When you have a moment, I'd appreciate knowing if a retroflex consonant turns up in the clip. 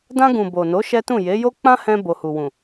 no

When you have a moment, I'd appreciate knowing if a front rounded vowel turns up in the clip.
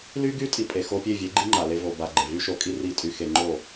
yes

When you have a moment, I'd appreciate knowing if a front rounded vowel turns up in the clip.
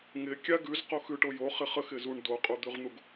no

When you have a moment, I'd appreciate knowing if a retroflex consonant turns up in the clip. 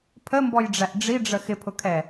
yes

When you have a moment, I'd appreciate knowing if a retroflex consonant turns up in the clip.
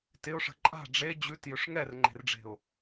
yes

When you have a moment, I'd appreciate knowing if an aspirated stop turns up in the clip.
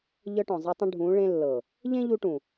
no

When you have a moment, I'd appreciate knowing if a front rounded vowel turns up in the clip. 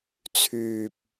yes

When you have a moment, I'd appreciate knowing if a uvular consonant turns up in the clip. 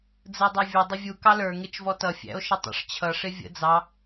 no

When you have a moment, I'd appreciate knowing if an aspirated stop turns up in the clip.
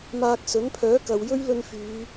yes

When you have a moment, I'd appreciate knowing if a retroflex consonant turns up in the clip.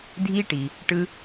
yes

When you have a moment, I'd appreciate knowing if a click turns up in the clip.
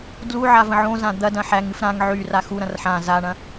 no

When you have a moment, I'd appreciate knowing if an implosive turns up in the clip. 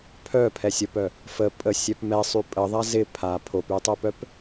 no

